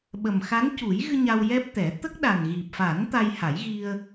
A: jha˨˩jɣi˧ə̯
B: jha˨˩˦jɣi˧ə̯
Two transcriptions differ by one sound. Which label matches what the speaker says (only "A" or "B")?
B